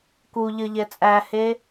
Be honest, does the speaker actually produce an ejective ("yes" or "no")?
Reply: yes